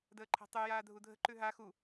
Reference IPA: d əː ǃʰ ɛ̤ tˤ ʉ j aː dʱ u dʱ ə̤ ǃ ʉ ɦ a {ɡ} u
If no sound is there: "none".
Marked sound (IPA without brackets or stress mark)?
x